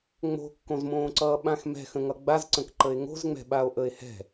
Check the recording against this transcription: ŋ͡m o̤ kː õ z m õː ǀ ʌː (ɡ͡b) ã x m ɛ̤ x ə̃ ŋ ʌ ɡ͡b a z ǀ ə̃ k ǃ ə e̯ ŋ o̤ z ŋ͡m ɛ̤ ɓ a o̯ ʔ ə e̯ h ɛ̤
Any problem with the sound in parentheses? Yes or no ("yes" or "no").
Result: yes